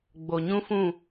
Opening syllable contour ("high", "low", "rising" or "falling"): low